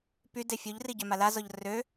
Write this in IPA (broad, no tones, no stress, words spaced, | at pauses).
py defʲoʎri ɟœmalazɔʎ rø